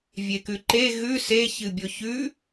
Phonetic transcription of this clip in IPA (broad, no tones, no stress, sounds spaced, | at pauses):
vʲ e k ʉ ǃ e ɣ ʉ s e ç ɨ bʲ o ç ʉ